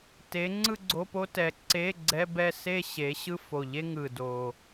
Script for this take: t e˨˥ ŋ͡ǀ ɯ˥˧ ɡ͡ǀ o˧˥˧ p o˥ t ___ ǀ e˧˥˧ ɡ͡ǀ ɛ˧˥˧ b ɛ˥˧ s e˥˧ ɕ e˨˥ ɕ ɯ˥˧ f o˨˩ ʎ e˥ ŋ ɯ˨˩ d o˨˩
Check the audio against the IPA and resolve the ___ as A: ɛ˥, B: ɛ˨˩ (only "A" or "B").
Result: B